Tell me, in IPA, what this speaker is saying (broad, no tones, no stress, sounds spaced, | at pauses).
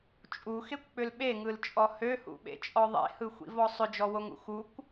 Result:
t͡ʃʼ u x e kʷ k͡p ʏ l ɓ e ŋ ɯ l t͡ʃʼ ɔ h ø h ṵ ɓ ḛ t͡ʃʼ ɔ ðˤ ḛ h ɯ xʷ ḭ v ɔ sˤ ʏ d͡ʒ ɔ w o ŋ ṵ x u kʷ